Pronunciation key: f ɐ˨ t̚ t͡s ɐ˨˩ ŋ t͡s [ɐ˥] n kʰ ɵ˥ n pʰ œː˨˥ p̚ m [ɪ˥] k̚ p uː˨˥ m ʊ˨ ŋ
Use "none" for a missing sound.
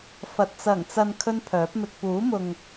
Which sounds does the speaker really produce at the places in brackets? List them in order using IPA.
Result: ɐ˨, ɪ˧

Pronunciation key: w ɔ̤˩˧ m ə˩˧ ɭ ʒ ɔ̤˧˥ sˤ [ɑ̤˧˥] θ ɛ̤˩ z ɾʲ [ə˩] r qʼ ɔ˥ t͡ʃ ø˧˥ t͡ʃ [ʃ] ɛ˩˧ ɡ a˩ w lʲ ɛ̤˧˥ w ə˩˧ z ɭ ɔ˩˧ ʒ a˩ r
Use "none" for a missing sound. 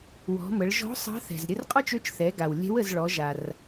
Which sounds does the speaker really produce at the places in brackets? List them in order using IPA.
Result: ɑ̤˧˥, ə˧, θ

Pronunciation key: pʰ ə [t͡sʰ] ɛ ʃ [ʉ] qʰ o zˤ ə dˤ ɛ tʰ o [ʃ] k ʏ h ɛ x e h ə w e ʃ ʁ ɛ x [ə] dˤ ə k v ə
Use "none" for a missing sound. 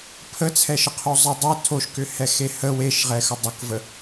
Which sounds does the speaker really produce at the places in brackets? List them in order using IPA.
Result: t͡sʰ, ə, ʃ, ə

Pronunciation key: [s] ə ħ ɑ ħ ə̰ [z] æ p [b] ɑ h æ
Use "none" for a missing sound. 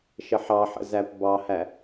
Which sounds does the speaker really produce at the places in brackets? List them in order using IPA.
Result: ʃ, z, b

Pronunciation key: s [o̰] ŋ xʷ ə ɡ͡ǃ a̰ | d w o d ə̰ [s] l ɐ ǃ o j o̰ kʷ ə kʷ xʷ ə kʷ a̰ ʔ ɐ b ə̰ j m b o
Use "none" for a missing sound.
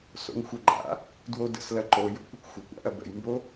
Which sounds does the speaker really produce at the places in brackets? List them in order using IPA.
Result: o̰, s

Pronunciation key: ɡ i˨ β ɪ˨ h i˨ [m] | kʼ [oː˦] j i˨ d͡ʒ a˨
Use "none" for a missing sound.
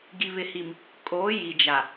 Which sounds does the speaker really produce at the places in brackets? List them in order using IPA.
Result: m, oː˨˦

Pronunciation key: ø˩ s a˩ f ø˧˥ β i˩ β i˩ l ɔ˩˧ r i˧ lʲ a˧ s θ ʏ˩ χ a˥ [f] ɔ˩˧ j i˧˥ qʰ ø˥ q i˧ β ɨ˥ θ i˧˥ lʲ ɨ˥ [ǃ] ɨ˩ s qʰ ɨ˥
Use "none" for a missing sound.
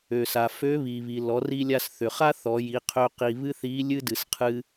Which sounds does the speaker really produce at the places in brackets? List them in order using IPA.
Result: θ, d

